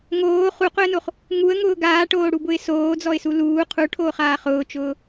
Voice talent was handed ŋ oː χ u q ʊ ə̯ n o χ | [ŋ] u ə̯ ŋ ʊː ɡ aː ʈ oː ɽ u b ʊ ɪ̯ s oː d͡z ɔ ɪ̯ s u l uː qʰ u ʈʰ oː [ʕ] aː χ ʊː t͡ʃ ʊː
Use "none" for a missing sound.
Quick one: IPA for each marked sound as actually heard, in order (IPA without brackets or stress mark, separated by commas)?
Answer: ŋ, χ